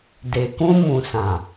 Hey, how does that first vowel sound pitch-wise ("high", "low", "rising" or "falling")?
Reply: low